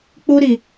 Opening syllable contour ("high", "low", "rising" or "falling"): high